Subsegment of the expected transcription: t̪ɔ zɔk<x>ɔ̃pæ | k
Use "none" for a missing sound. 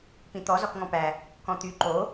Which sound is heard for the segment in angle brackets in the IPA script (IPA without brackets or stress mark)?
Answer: ŋ